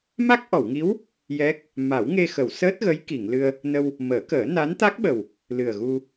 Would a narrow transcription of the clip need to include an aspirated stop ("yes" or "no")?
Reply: no